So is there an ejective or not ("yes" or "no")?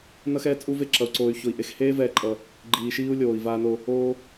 yes